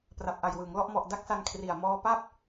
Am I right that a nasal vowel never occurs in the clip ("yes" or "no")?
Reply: yes